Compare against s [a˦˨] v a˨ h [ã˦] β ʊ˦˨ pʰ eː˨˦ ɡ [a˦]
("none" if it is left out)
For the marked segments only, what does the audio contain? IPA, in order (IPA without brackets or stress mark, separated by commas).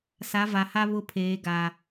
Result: a˨˦, a˦, a˨